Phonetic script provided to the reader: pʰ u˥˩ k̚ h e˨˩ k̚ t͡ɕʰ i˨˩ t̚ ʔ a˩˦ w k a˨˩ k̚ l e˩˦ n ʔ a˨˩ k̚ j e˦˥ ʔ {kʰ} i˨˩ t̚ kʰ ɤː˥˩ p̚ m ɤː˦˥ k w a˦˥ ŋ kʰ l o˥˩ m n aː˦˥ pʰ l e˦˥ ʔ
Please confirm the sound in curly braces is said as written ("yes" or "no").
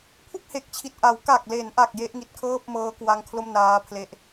no